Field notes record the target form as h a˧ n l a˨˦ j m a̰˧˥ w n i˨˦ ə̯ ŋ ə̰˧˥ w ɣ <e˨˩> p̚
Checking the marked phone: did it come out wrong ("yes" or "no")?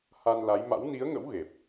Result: no